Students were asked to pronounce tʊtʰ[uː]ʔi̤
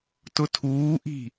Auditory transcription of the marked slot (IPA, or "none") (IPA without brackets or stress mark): uː